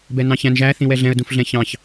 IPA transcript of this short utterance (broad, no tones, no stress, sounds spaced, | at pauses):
b ɛ n ɑ̃ ç æ̃ n ʒ æ θ ĩ w ɛ ɮ ɛ̃ ə̯ d ũ f ɮ ɛ̃ ç ɑ̃ ç